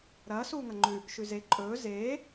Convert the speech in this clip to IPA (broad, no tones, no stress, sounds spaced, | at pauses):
ɾ ɐː s uː ŋ ɐ ŋ͡ǃ ʉ | ʃ ʉ z e ǃʼ ɵː z eː